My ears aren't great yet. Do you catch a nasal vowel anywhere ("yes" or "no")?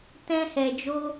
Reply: yes